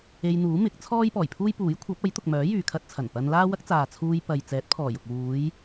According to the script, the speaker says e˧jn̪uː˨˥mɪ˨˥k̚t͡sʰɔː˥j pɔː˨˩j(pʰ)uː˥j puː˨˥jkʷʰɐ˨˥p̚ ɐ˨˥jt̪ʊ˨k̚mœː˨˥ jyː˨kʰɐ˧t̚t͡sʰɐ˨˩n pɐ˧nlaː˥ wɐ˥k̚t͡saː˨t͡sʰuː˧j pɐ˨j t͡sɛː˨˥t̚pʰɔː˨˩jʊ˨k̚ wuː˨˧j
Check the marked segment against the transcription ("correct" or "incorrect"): correct